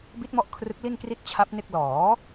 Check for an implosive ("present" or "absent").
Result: absent